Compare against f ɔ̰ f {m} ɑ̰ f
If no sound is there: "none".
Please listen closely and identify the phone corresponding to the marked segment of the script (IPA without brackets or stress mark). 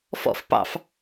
p